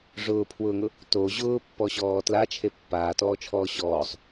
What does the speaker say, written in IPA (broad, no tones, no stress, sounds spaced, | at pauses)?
ʐ ʊː pʰ w ʊː ŋ ʊ | t o ʑ ʊː pː ɔ ɕ ɔː t l a t͡ʃʰ e pː aː t ɔː t͡ʃʰ ɔː ɕ ɔː sˤ